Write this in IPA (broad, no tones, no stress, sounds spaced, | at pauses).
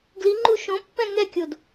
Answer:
ɡ l i ŋ͡ǃ u ʃ õ pː ɛ̃ ŋ ɛ kʲ o d